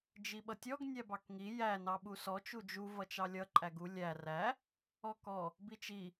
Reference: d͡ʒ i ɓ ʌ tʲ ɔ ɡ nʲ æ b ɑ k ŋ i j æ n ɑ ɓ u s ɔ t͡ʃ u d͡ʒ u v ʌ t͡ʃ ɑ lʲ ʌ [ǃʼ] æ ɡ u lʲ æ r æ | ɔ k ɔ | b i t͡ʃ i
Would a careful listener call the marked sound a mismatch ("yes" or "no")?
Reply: no